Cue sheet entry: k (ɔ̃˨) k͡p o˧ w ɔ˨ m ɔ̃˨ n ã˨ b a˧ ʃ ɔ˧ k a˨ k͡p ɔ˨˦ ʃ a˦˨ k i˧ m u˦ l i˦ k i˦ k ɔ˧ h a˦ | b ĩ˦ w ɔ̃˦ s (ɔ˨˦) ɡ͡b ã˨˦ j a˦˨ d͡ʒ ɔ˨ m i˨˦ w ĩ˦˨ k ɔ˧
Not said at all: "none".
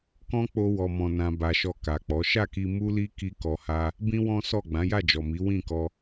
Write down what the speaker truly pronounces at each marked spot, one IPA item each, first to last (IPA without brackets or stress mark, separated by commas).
ɔ̃˦, ɔ˦˨